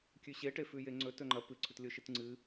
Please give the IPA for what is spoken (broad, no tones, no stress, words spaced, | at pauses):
kʲʉɕe ʈefʉjeŋ͡ǀɵt ɵŋ͡ǃɐ pɨ ǀʰɵtlʲoʃɨtŋ͡ǀɨ